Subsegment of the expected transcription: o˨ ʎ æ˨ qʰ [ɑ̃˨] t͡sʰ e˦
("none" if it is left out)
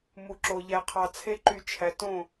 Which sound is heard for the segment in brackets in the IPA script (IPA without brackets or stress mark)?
ɑ˨